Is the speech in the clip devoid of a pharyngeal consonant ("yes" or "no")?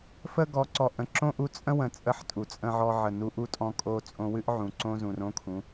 no